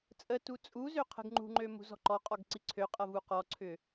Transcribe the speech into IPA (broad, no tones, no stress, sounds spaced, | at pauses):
t͡sʼ ə t u t͡sʼ u z ø qʰ ə̤ ɡ ŋ͡ǃ ṳ ŋ͡ǃ ø m ṳ z ɔ̤ ǃ ɔ qʼ ɔ ɡ ǀ i ǀʰ ø qʼ ʌ v u q ɔ ǀʰ ʏ